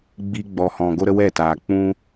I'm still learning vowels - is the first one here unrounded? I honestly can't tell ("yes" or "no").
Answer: yes